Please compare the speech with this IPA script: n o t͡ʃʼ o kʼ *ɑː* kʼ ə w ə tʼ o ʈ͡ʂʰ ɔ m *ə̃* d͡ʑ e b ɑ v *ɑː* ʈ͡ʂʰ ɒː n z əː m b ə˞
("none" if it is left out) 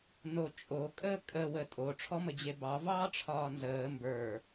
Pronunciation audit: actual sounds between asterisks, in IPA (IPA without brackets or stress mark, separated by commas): əː, ə, ɑː